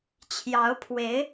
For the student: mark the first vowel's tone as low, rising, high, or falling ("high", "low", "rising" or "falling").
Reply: rising